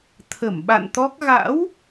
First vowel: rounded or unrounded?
unrounded